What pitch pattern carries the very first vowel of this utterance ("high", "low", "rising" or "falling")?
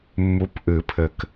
rising